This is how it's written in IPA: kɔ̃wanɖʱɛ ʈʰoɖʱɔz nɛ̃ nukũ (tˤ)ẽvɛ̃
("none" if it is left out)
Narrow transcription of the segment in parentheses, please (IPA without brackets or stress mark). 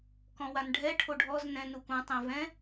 tˤ